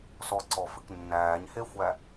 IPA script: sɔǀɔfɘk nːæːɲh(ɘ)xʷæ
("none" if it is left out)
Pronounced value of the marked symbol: e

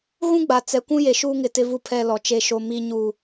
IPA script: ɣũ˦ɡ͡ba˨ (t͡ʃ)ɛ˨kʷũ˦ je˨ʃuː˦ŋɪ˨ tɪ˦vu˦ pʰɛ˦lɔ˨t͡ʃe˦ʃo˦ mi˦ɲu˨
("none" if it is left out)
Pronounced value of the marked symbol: t͡s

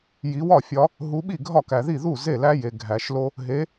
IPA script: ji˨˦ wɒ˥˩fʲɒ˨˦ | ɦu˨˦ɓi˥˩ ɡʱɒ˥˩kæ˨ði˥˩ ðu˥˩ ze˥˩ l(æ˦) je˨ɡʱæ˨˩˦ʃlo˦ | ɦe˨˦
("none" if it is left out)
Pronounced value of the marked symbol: æ˦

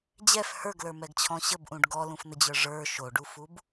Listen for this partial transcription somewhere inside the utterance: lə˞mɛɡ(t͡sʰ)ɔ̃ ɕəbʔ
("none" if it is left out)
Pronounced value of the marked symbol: t͡ɕʰ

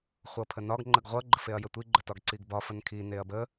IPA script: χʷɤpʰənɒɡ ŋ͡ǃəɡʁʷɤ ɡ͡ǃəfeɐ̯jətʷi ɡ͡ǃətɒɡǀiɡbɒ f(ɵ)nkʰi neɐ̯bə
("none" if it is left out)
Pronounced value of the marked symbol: ə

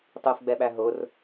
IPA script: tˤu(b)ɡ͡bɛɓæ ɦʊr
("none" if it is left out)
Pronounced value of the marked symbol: f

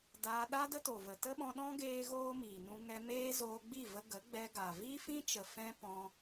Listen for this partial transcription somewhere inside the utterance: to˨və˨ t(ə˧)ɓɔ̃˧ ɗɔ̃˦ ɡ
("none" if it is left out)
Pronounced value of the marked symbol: ə˦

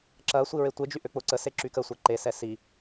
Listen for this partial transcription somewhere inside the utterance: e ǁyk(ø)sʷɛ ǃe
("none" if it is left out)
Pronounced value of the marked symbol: ə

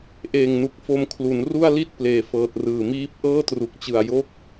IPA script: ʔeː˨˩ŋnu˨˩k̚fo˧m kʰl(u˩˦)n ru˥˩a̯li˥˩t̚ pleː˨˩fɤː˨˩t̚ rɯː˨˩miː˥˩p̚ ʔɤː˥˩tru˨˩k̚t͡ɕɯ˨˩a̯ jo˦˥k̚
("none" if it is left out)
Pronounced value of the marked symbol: u˩˦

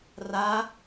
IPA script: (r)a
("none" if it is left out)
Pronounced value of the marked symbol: r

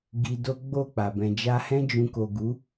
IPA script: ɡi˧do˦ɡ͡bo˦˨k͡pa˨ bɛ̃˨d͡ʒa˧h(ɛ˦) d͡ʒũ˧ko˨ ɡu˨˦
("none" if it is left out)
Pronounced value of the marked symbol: ɛ̃˦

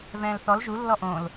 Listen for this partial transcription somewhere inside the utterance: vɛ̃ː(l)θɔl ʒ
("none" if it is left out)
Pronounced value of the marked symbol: l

